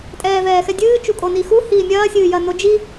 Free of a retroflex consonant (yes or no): yes